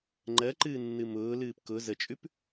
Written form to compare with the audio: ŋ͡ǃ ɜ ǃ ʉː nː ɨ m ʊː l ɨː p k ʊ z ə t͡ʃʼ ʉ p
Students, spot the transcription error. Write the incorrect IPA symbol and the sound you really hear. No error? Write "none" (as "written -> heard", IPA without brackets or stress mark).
ʉː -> ɨː